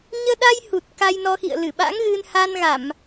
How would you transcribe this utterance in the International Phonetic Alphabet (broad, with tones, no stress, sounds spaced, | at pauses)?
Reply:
ɲ əː˧ ɗ a˧ j h u˨˩ t̚ k a˧ j n ɔ˧ x ḭ˧˨ ə̯ l ɨ˧˩ ɓ a̰˧˥ ŋ ɣ ɨ˧ n h a˧ n ɣ a˧˩˨ m